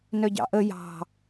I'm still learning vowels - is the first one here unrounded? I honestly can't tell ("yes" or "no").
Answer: no